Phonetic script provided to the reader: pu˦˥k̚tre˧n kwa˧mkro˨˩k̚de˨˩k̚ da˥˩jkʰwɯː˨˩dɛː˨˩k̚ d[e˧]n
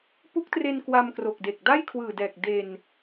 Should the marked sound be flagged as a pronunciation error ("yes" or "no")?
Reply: no